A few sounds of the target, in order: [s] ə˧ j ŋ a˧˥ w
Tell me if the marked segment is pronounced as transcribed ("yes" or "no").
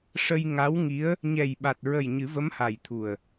no